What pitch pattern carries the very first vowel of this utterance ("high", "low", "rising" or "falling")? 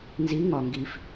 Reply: rising